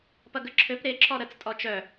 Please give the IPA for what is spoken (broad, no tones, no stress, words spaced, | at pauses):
pɐɡəǁʰøp ɾe ǁɔɾət͡s tʼɔt͡ʃœ